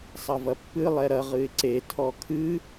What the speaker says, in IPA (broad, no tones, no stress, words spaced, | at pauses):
sˤɐvɐpːɨ lˠɛɾɐ ʁɨɪ̯ǀe tʰɔkʰɨ